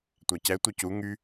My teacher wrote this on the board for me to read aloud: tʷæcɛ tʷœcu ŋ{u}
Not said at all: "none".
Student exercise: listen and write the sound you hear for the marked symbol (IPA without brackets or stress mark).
y